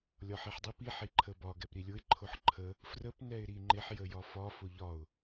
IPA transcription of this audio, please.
lʲ ɒ ħ i ħ dˤ i p i ħ i ǃʰ ə b ɒ ɡ ɛ p ɾ i lʲ ʊ ɪ̯ ǃʰ ʊ ħ ǃʰ ə | f r ə p n ɛ ɪ̯ ɾ i ŋ͡ǃ ɪ ħ j ə j ɒ f ɒ f ʊ ʎ ɒ ʊ̯

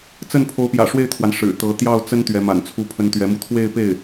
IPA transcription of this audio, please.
t͡s ə˥˩ n pʰ o˧˥ ʊ̯ p j ä̰˨˩ ʂ w e˥˩ ɪ̯ t̪ʰ w a˩ n ʂ ɻ̩˨˩ t̪ ɤ˧˥ t̪ j ɑ˥˩ ʊ̯ t͡s ə˥ n t̪ ɥ ɛ˧˥ m a̰˨˩ n t͡sʰ u˥ pʰ ə˥ n t̪ ɥ ɛ˧˥ m u˥˧ t̪ʰ w e˥˧ ɪ̯ p e˥˩ ɪ̯

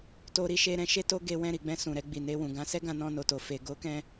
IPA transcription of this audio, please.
t o˦ ɾ i˦ ʃ e˦ ɾ ɛ̃˦ ʃ e˦ t o˦ ɡ e˧ w ɛ̃˧ ɾ i˨ ɡ͡b ɛ̃˧ s ũ˨ ɾ ɛ˧ ɡ͡b i˨ n e˧ w ũ˨ ɡ ã˧ s ɛ˦ ɡ ã˧ n ɔ̃˧ n o˨ t o˨ f e˨ ɡ o˨˦ k ɛ̃˧

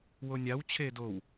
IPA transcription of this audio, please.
w o nʲ a w t͡ɕʰ eː d o w

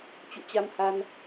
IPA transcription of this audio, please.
t͡ɕ ṵ˧˨ t͡ɕ a˧ m h a˧ n

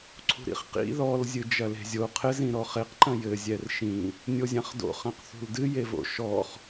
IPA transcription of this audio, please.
ǀʰ ṳ ɾ ḭ χ q ḭ ð ɔ l zʲ ɨ d͡ʒ ɐ l e̤ zʲ o qʰ ɘ z ĩ ɾ ɔ χ e q ǃ ɐ̃ j ɘ zʲ ɛ r ʃ ĩ | nʲ o zʲ ã χ d o̰ χ ɐ̃ q θ ṳ l d ɨ j e v o̰ ʃ ɔ χ

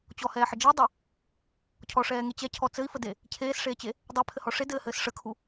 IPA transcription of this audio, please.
t͡ɕ ɔ h ɛː ħ ə d͡ʒ ɘː dˤ e | cʰ ɔ ʂ ɛː ŋ e t͡ɕ ɛ cʰ ɔ t͡s ɘ i̯ f ə d e | cʰ eː s ʂ eː t͡ɕ e | dˤ e pʰ ɘ h ɔ ʂ e d ɘː h ɘː s ʂ ə kʰ u

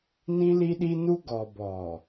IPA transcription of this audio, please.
n ĩ˦ l i˦ ɗ i˦ n u˦ ɡ ɔ˨ b ɔ˨

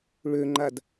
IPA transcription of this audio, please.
ɭ ø ŋ͡ǃ a d

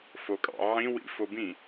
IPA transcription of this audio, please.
f o kʼ ɑ̰ ʕ ĩ w ḭ f o b ĩ

